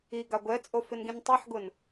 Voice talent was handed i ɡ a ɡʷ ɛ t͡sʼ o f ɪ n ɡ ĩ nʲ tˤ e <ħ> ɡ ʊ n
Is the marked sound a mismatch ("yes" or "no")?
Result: no